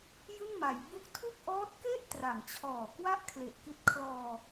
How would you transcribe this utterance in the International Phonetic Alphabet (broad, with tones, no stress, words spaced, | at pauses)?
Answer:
jɯ˥˩ŋma˩˦jbu˥˩k̚ tʰu˥˩k̚ʔɔː˦˥t̚ke˥˩ʔ tra˩˦ŋt͡ɕʰɔː˨˩ kwa˥˩ʔkʰle˨˩ʔki˦˥t̚ kʰlɔː˧